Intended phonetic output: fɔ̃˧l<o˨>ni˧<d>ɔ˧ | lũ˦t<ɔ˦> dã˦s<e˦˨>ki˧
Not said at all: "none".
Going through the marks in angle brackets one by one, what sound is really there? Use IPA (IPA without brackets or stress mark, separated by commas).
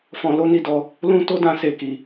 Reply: o˦, d, o˦, e˦˨